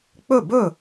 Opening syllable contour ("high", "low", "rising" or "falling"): falling